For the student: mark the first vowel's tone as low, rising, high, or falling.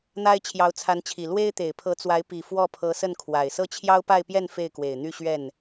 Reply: high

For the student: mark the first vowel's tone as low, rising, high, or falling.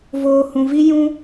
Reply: low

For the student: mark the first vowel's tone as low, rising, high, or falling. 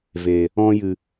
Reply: low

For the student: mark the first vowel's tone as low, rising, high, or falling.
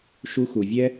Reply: high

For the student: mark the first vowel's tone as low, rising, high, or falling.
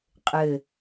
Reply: low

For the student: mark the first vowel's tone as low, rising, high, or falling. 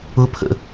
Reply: high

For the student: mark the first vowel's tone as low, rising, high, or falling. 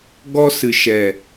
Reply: high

